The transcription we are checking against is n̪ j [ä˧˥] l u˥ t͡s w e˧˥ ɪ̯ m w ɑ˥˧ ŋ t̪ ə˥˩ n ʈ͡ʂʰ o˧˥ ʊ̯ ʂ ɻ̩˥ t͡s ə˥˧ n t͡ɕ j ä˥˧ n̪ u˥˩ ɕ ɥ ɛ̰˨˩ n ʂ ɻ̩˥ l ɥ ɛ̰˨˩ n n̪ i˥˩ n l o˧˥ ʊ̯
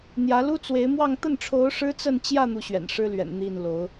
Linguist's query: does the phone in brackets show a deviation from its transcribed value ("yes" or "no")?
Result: no